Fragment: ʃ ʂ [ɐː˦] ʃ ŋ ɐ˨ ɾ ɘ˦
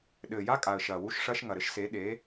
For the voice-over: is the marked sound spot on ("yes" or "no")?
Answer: yes